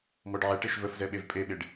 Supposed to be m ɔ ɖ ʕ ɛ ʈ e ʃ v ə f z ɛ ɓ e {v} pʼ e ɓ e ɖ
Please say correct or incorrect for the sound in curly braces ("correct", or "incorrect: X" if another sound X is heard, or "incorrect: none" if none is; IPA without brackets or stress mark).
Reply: correct